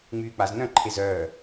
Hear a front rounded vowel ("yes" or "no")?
yes